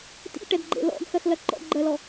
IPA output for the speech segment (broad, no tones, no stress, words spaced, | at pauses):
tḭʈɛdɡ͡ǃḛ lɔ̰ɡxɜxlɐ ǃɔ̰ɡ͡ǃɜlɔ